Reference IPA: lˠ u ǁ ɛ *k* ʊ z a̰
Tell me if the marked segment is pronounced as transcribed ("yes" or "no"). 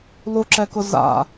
yes